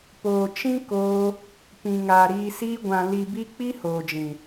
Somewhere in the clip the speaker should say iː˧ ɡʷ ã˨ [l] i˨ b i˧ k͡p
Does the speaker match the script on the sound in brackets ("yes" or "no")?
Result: yes